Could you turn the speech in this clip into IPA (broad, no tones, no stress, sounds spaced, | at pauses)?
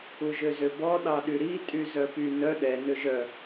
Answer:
u ʒ ø z ø b ɔ ɗ ɑ ɗ y ɾ i tʼ y z œ p y n œ ɗ ɛ n ø ʒ œ